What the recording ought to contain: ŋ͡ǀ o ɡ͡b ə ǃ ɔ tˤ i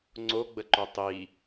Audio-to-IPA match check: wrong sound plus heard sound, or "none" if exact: ɔ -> o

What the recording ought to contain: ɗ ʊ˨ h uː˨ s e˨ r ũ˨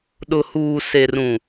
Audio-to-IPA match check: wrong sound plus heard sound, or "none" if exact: none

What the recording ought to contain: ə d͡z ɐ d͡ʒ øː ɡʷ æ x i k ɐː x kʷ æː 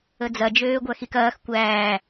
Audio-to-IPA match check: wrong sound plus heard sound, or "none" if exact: none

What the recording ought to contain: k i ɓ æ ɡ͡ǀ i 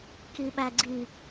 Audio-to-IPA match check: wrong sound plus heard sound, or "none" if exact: none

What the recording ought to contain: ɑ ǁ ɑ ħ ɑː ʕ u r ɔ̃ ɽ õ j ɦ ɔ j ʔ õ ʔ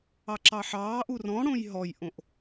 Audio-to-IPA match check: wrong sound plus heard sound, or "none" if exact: ʕ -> ʔ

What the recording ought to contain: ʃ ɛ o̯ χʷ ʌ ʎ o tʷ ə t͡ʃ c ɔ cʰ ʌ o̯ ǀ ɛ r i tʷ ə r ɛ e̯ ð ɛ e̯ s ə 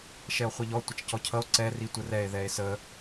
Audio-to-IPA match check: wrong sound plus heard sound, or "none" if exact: o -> ɔ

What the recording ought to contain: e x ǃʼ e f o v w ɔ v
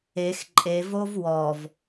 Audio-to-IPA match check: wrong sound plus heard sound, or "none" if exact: f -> v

